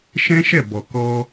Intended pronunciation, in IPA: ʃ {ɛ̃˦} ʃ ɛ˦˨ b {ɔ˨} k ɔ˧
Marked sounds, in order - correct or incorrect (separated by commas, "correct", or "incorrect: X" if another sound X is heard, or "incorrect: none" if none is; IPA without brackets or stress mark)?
correct, correct